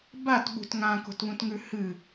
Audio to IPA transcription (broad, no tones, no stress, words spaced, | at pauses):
batɓṳt ŋãko̤tβũtŋʉ hɨ